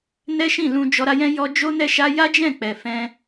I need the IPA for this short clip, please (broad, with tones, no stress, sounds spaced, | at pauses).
n ɛ˦ ʃ ĩ˦˨ l ũ˧ d͡ʒ ɔ˧ ɾ a˧ j ɛ̃˦ j ɔ˧ d͡ʒ o˦ n ɛ˦ ʃ a˦ j a˦ d͡ʒ ɛ̃˦˨ k͡p ɛ˨ f ɛ̃˧